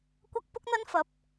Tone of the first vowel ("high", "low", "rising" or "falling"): high